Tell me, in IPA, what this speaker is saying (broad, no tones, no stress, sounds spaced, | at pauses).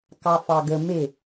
k ɑ f ɑ ɡ ə m e